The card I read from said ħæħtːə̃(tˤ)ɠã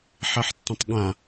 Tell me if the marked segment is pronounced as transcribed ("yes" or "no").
yes